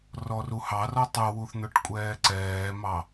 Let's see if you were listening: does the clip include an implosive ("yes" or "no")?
no